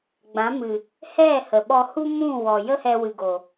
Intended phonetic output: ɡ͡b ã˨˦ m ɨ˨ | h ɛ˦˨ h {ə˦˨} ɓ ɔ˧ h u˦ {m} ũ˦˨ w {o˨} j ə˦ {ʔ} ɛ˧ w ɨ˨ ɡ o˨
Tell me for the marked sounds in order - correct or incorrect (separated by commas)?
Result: incorrect, correct, incorrect, incorrect